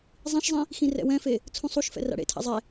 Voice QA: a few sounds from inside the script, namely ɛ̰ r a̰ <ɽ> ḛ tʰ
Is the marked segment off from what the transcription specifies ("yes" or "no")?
no